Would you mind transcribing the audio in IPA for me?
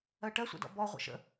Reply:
ɜ ʈ ɜ sʷ ɛ̰ d ɔ̰ b ɔ ʁʷ ə̰ ʃ ə̰

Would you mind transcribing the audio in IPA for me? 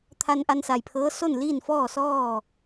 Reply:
t̪ʰ a˧ n ʔ a˧ n s a˩ j pʰ ɤː˧˥ s o˥˨ n l iː˥˨ n f ɔː˥˨ s ɔː˥˨

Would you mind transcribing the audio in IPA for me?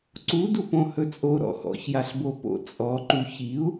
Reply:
ǀ u d u p õ h ɵ t͡sʼ o ɾ ɔ̰ x ɔ̰ ç j a ɬ b o p o̰ t͡sʼ ɔ ǃ u ç i u̯

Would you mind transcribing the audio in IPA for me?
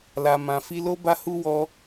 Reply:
l a˨ m ã˨ f i˧ l o˧ b a˧ h u˧ w ɔ˧

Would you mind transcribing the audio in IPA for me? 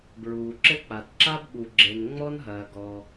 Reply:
b ɹ uː˩ ǁ ɘ˥ k͡p a˩ t ǁ a˥ b ɓ u˩ ɡ͡ǁ e˩ n ŋ͡m ɔ˥ n ɦ ɐː˩ ɡ ɔ˩

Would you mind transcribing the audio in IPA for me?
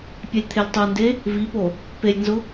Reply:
pʲ ɛ lʲ t̪ʰ e lʲ tˤ o n d e | v i p o | p e lʲ n z ʊ

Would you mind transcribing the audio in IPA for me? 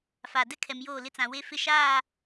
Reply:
f aː˨ d ɛ˦ kʰ ɛ˨ m j oː˦˨ l ɪ˦ t͡s ã˨ w e˦ f ɪ˦ ʃ aː˦˨

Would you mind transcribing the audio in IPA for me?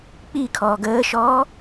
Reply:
k͡p i kʰ ɔː ɡ əː ʃ ɔː

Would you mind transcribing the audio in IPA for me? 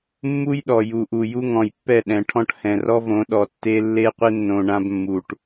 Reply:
mː u˦ j ɗ ɔ˨ j u˨ ʔ u˨ j u˦ ŋ ɔ̃˨ j pː ɛ˦˨ ɗ ɛ̃˨ ʈʰ ɔ̃˦ ʈ h ɛ̃˨ r ɔ˦ v õ˨˦ ɗ ɔ˨ tː e˦ lː e˦ qʷ ɪ˦ nː õ˨ ɳ ã˦ b mː u˨ ʈ

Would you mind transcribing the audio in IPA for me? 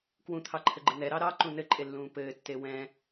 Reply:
k w ũ t̪ʰ ɑ ǃʰ ɘ ɡ͡ǃ ɘ n ɛ ɾ ɑ ɾ ɑ ǃ ũ n ɘ ǃʼ e lː ũː p ɘː tː e w ɛ̃

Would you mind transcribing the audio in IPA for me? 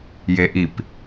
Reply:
j e ʔ i p

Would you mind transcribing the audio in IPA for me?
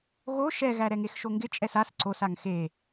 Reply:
ɣ o ʃ ɛ ɣ æ ɾ ɛ ŋ e x ʃ o ŋ ɡ ɪ t͡ʃʼ ɛ s a s ǀ o s a ŋ x e

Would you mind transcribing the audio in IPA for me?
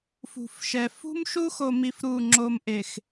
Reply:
f ṳ˨ f ʃ ɛ˨ f ṳ˦ m ʃ u˦ x o˨ m i˨ f ɾ u˦˨ ŋ͡ǁ o˦ m ʔ e˨ x

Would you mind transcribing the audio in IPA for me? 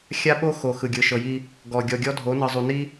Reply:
xʲ a˦ ɓ o˦ x o˨ x ɯ˨ ɡʲ ɯ˨ ʃ ɤ˨ j i˦ | ɡ ɔ˨ ɡʲ ɔ˨ ɡʲ ɔ˦ dʱ o˨˦ n ɯ˨ zˤ u˨ n i˦

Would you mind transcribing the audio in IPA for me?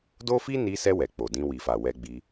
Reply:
d o˦ f i˦ n i˧ s ɛ˧ w ɛ˨ k͡p o˨ d ĩ˧ w i˨ f a˨ w ɛ˧ ɡ͡b i˧

